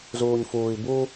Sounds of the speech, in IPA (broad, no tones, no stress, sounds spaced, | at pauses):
z uː ɲ f uː i̯ b u